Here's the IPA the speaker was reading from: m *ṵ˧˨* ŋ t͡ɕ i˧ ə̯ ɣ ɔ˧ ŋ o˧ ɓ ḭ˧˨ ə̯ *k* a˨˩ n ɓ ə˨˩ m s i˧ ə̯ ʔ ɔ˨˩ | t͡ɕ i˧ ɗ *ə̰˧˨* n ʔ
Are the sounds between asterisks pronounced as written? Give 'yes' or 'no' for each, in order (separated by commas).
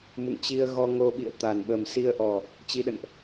yes, no, yes